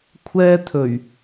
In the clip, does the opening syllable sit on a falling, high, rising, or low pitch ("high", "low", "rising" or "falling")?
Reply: high